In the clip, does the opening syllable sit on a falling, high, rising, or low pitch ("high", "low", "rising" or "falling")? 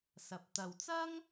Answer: low